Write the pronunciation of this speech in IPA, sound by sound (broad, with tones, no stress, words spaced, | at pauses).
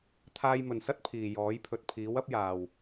t̪ʰaː˧jmɵ˨nsɐ˥t̚ pʰiː˨jɔː˨˥j pʰɵ˨t̚pʰiː˨˥wɐ˥p̚jaː˨w